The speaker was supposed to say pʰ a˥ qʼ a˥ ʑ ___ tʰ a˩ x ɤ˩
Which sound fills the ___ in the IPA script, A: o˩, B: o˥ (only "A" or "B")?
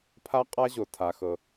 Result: A